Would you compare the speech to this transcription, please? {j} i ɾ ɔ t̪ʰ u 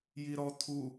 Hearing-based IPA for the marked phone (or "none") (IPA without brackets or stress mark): j